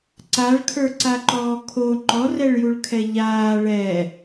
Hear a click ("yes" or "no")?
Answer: yes